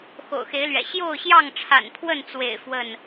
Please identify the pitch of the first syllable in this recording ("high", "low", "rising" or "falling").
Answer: low